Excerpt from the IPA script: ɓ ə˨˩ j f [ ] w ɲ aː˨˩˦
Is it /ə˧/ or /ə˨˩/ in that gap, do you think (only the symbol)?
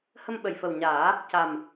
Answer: ə˨˩